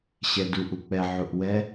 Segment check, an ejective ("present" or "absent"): absent